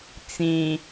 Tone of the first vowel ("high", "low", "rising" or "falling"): low